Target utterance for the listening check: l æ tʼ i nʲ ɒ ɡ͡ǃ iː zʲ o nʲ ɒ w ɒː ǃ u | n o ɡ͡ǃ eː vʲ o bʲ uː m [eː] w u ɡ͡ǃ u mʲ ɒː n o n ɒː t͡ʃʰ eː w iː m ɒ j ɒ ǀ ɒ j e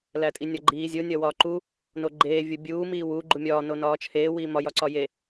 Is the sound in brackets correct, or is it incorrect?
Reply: incorrect